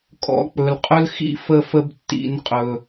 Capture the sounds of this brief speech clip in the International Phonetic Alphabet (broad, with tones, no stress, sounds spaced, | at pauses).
kʼ ɔ̰˨ k͡p ɵ˨ l qʼ ɵ˦ l x ḭ˦ f ə˦ f ə˦ b tː ḭ˦ n qʼ ɵ˦